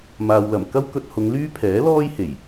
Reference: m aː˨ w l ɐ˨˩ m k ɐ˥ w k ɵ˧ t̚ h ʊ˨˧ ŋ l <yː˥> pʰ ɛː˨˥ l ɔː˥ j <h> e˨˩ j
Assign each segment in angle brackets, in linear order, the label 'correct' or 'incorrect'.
correct, correct

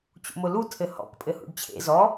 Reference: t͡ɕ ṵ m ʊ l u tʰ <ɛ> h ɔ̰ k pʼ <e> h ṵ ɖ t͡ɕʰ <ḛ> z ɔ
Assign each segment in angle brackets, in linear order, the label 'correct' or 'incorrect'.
incorrect: ɘ, incorrect: ɘ, correct

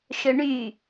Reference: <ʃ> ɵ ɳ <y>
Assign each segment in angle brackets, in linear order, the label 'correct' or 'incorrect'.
correct, correct

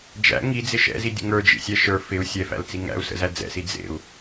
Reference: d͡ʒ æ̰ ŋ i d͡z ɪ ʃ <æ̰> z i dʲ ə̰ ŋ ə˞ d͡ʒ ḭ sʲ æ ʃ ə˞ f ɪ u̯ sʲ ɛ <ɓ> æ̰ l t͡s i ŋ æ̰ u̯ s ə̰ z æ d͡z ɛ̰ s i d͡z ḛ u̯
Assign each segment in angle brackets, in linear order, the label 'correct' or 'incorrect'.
incorrect: ɛ̰, incorrect: f

